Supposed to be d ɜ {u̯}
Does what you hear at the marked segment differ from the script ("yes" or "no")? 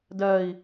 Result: yes